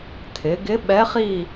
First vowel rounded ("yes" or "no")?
no